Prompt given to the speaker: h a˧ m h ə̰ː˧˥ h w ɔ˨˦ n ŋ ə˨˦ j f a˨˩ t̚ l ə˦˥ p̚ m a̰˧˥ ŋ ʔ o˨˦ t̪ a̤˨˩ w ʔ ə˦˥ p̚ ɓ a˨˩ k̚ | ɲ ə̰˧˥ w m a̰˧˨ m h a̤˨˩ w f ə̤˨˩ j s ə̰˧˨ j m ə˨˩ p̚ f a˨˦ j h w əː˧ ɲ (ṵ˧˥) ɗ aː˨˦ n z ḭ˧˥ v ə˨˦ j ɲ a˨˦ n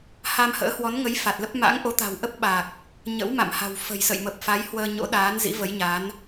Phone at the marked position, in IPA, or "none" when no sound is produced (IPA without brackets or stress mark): o̰˧˥